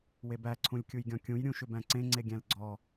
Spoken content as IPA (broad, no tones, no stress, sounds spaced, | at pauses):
w e b æ ǀʰ ũ lʲ kʲ u j ɡʲ ɔ̃ kʲ ũ j ɾʲ ũ ʃ ʏ b æ̃ ǀ ẽ ŋ͡ǀ e ɡʲ æ̃ l ɡ͡ǀ ɔ